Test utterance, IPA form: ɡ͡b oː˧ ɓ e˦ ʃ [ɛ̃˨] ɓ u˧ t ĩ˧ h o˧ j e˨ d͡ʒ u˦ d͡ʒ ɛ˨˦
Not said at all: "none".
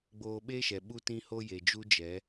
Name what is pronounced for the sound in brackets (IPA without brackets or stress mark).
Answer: ɛ˨